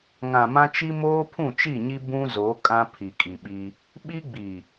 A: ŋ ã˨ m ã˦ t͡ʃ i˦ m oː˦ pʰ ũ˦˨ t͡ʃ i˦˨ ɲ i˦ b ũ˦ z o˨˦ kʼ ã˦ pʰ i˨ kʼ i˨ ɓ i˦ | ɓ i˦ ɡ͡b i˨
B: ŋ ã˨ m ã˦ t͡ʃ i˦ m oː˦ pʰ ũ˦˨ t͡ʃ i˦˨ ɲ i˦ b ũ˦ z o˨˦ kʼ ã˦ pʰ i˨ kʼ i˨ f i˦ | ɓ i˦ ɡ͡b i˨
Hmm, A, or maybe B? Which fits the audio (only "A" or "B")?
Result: A